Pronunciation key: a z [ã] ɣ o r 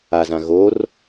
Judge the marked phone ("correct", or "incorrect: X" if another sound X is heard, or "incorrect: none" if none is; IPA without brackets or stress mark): correct